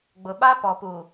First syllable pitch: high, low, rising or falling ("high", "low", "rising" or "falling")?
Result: low